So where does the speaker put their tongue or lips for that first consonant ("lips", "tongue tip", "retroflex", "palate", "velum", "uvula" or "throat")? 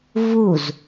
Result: lips